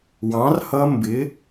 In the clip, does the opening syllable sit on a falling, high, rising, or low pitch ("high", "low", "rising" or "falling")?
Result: rising